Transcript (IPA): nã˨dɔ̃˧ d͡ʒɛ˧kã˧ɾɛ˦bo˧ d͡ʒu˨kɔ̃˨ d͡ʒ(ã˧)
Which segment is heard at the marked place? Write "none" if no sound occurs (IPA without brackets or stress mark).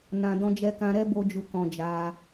a˧